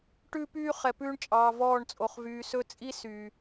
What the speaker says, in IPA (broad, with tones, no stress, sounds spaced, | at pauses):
ʈ ʉː˦ p yː˦ χ ɛ˨ p ʉː˦ ɳ t͡ʃʼ ɑː˨ v ɔː˦˨ ɳ t͡sʼ o˨ χ v yː˨ s ɵ˦ t͡sʼ i˦ s yː˨